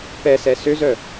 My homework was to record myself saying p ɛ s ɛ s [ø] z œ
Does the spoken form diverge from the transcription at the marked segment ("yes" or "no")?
no